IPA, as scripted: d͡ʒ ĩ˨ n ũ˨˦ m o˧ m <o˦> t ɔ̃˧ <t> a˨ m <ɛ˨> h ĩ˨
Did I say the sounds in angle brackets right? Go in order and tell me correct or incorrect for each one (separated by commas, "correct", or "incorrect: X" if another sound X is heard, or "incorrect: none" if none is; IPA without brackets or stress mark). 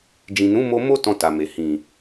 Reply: correct, correct, incorrect: e˨